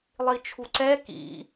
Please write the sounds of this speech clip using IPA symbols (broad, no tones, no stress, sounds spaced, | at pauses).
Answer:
lˠ i t͡ʃʰ u ǀ ɛ k ḭ